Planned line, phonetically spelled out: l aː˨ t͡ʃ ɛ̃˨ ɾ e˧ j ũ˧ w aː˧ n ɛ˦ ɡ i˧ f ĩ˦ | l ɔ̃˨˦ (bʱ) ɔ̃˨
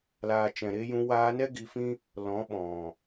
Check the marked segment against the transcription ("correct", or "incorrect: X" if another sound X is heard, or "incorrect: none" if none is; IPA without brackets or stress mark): incorrect: ɓ